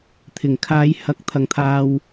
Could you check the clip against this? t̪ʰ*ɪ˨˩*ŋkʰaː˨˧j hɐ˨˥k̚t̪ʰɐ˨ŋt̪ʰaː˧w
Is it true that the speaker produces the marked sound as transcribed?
yes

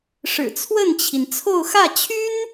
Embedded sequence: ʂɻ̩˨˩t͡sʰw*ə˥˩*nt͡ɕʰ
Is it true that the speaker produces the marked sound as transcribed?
yes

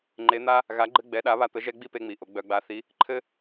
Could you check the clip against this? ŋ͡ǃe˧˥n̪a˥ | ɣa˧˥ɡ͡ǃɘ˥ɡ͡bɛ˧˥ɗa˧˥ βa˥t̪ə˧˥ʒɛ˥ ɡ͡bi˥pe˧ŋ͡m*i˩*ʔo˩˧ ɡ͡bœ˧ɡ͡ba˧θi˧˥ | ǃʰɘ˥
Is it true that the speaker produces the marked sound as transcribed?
no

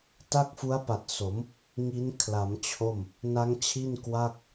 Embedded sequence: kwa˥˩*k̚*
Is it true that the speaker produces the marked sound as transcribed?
yes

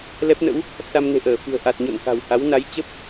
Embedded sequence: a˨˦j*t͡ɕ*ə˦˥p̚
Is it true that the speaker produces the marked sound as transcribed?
yes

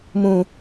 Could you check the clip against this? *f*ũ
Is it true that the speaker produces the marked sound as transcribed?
no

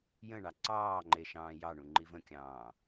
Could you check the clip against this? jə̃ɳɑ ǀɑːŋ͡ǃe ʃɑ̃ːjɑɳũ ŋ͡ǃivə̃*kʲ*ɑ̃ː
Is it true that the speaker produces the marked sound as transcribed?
yes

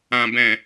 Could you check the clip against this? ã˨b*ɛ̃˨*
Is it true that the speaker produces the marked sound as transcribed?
yes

